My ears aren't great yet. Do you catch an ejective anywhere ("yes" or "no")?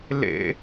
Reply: no